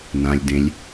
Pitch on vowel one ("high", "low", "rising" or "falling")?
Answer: low